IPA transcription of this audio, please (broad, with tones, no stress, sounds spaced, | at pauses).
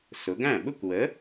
s ʊ˩˧ ɡ æ̃˥˩ ɓ ʊ˥˧ kʷ w ə˨˥